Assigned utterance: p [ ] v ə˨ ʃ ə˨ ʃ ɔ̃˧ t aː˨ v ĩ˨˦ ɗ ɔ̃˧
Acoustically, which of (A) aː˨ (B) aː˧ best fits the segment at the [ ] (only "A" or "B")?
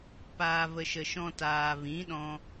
A